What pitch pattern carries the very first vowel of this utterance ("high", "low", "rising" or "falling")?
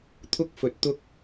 high